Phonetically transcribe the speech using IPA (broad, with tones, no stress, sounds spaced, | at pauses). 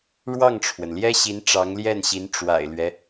ɻ w ɑ˥˩ ŋ ʈ͡ʂʰ w ə˩ n l j ɛ˥ ɕ i˧˥ n ʈ͡ʂ ɑ˧˥ ŋ l j ɛ˥˩ n ɕ i˧˥ n ʈ͡ʂ w a̰˨˩ ɪ̯ l ɥ ɛ˦